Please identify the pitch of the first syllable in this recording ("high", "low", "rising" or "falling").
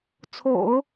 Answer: low